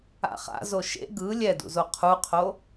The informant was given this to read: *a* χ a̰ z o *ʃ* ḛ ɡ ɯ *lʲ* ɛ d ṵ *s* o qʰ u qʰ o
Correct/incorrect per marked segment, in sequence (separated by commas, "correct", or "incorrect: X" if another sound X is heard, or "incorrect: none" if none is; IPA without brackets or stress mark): incorrect: a̰, correct, correct, incorrect: z